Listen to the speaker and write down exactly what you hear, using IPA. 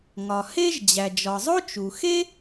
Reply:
ŋ ɒ˩ h e˥ ʒ d͡ʑ æ˩ d͡ʒ ɒ˩ zˤ o˥ t͡ʃ u˩ x e˥

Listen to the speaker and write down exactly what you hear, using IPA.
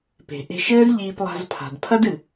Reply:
p e̤˩ ʔ e̤˧ ʃ ɘː˥ z ʎ iː˧ p lˠ a̤˧ z pʰ a̤˩ d pʰ ɐ˥ d ɨ˩

